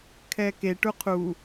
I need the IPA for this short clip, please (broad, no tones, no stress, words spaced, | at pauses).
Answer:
kʰɛke ʈuqʰu